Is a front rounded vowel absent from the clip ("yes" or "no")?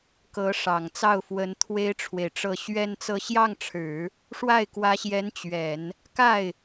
yes